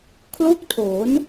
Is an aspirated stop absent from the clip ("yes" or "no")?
no